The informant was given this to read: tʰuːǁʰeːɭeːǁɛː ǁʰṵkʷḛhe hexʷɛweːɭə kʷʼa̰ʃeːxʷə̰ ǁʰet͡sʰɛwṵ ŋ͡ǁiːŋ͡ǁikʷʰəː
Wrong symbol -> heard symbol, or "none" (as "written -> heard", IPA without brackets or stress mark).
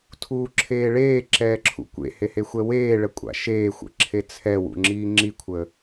none